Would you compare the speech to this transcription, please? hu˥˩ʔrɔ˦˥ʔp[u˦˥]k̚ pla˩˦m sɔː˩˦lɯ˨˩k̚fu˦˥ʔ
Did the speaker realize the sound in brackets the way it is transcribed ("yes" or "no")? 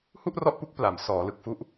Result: yes